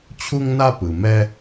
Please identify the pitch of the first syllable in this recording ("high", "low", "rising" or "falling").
high